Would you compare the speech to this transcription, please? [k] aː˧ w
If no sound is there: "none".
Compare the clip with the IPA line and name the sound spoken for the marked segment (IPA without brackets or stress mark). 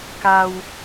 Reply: k